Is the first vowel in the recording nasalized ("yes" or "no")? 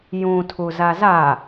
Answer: yes